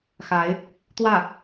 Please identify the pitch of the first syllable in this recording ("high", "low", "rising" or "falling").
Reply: rising